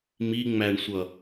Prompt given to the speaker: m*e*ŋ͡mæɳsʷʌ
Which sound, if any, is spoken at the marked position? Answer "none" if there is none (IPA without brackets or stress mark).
i